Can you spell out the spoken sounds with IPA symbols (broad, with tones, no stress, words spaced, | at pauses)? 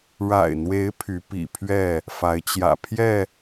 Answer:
ɻa̰˨˩ɪ̯n̪we˨˦ɪ̯ pʰy˨˦pḭ˨˩pʰɥɛ˥˨ | fa˨˦ɪ̯t͡ɕjä̰˨˩pʰjɛ˥˨